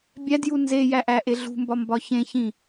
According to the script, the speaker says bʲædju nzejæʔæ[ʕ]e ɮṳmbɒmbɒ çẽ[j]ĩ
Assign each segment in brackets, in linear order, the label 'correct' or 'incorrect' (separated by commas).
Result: incorrect, incorrect